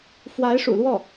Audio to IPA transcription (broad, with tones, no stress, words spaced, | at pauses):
fwa˧˥ɪ̯ʂṵ˨˩lwɔ˥˩